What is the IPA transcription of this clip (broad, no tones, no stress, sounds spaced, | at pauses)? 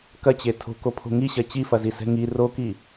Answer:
k ɐ t͡ɕ e tʰ o̤ k o pʰ o̤ ŋ i ɕ ɐ t͡ɕ i f ɐ z i s ɛ̤ ŋ i r o k i